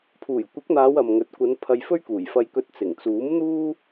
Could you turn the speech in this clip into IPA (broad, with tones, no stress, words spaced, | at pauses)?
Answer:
pʰuː˨˩jkʷɪ˨˥k̚n̪aː˨˧w ɐ˨mŋɵ˨t̚ kʷɐ˨˧n pʰɐ˧jfɵ˥ɥ kuː˨˩jfɐ˧jkɵ˧t̚ t͡sɪ˨˩ŋ t͡suː˨˥mn̪uː˥